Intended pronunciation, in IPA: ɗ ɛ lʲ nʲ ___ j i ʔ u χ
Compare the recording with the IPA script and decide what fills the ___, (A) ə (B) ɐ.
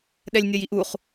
B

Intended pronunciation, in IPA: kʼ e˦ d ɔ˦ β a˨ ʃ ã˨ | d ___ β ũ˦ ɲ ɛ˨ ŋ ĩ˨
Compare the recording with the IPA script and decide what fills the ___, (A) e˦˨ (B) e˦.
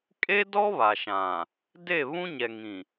A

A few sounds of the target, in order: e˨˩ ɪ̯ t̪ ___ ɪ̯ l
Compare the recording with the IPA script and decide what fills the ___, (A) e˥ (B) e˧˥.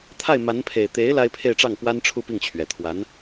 B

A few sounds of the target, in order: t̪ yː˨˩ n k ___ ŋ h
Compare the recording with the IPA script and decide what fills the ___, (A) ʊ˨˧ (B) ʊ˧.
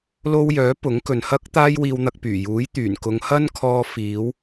A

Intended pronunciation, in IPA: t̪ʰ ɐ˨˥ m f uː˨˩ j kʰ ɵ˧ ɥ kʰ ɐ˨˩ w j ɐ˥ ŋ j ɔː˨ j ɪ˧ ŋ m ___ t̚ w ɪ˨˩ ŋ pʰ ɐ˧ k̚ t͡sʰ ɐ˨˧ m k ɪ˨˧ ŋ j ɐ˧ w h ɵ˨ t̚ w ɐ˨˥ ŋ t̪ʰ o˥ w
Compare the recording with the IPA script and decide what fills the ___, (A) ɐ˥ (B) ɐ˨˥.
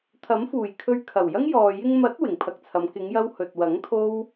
B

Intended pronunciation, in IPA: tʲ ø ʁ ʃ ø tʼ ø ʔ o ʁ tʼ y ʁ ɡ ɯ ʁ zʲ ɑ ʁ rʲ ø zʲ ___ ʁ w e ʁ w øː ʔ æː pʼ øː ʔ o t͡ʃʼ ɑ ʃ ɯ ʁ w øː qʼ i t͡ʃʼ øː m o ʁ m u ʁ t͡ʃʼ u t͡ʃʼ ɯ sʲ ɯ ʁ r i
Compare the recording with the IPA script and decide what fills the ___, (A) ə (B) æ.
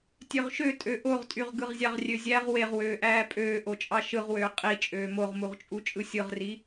B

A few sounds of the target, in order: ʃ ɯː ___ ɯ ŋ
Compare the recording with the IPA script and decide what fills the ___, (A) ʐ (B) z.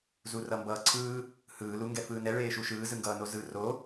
B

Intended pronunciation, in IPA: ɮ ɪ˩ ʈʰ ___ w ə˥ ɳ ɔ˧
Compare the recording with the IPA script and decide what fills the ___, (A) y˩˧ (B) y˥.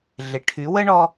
A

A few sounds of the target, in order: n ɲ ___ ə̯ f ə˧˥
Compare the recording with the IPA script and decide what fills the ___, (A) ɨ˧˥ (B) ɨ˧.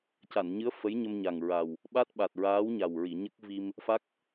A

